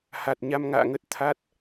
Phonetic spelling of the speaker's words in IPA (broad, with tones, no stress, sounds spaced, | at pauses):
h a˨˩ t̚ ɲ a˧ m ŋ a̰ː˧˨ ŋ ə˦˥ t̚ t̪ʰ a˦˥ t̚